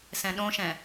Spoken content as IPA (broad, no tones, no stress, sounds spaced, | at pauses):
s ɛ̃ ɗ õ ʃ ɛ̃